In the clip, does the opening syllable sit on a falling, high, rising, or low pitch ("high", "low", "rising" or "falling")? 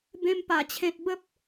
high